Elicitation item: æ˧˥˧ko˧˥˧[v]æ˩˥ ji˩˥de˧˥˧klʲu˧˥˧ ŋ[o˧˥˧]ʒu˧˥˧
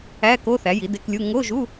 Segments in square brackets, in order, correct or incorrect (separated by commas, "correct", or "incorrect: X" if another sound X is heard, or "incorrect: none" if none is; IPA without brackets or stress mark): incorrect: θ, correct